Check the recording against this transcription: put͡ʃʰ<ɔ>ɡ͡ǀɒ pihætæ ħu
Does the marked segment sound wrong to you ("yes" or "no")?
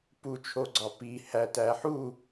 yes